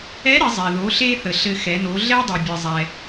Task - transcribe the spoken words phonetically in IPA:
ɛ˧˥ ɾ ɘ˩˧ zˤ ɛ˩ ð o˩˧ ɬ e˧ θ ə˩ ɬ ɘ˧ x ɛ˩˧ n o˩˧ ɮ ɛ˥ dˤ i˩ bʲ ɘ˩ zˤ ɛ˩

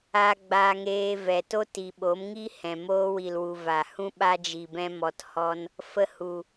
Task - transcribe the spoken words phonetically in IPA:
a˧ ɡ͡b a˧ ŋ eː˧ v ɛ˨ t o˦ t i˨ ɓ o˨˦ m ŋ i˦ h ɛ̃˨ m oː˧ w i˨ l w u˨ v a˨ h ũ˦ ɓ a˧ d͡ʒ i˨ b ɛ̃˧ m ɔ˧ t h ɔ˦ n | f ə˧ h u˨

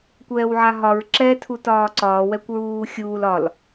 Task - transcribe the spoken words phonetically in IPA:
kʷ ɛː w ʕ a ɦ ɒ ɹ ǁ ɛ tʰ u t ɒː ǀ ɒː w ɛ kʷ ɹ uː xʲ uː l ɒ l

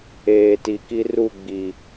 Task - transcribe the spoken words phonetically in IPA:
eː˨ t i˨ k i˦ r u˦˨ ɡ͡b i˨

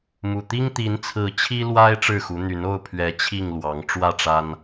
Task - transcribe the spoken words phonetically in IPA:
m u˨˩ t̪ i˦ ŋ t̪ i˨˦ n t͡sʰ ɹ̩˨˦ t͡ɕʰ i˦ l w a˦ ɪ̯ ʈ͡ʂ ɻ̩˥˨ x u˨˦ n̪ y˨˦ n o˥˨ ʊ̯ pʰ ɥ ɛ˨˦ t͡ɕʰ i˥˨ ŋ l w ɑ˨˦ ŋ ʈ͡ʂ w ä˥˨ ʈ͡ʂ a˦ n

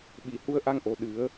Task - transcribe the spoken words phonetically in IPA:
ɓ i˨˩˨ h u˧ ə̯ ʔ a˧ ŋ ʔ o˨˩ ɗ ɨ˨˩˦ ə̯

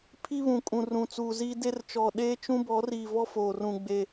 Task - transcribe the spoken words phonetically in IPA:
pʰ i˦ β ũ˨ kʼ ũ˨ r ũ˨ t͡s uː˨ z iː˦ d e˦ r t͡ʃ ɔ˨ ɗ eː˦ t͡ʃ ũ˦ b ɔ˨˦ r iː˨ v ɔ˦ f oː˨ r ũ˨ ɡ͡b e˨

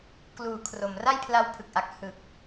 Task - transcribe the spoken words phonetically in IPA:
k l uː˩˦ kʰ r o˩˦ m r a˥˩ j pʰ l a˦˥ w pʰ ɯ˨˩ k̚ ʔ a˨˩ k̚ h ɯ˨˩ k̚

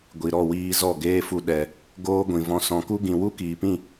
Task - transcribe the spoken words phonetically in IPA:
ɡʷ i˨ ɾ ɔ˦˨ w iː˧ z ɔ˦˨ ɡ eː˦ f u˧ ɗ ɛ˨ | ɡ oː˦ ɡʷ ĩ˨ v ɔ̃˧ s ɔ̃˨ k u˦ ɡ ĩ˨ w u˦ k iː˨ p ĩ˦˨

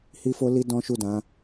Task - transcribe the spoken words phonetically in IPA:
h i˦ f o˦ l i˦ d ɔ̃˦ ʃ u˦˨ d ã˨˦

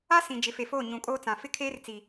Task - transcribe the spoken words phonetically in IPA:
a˦ s ĩ˨ d͡ʒ ɪ˨˦ f e˨ f oː˦˨ ɲ ũ˨ kʼ oː˦ t͡s ã˨ f ɪ˦ kʰ eː˦ r t͡s i˨

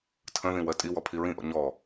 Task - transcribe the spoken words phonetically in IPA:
tʰ ə̃ ð ĩ w ɜ tʼ i w ɔ pʰ i ɹ ĩ ʔ ɔ̰ ɲ ɔ

